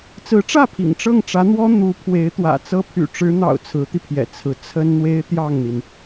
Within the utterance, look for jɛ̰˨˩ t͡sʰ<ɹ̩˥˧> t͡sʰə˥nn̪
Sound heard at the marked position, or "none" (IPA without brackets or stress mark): ɹ̩˧˥